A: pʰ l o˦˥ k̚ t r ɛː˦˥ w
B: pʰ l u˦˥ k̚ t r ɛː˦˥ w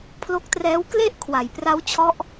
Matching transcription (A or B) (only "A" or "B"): A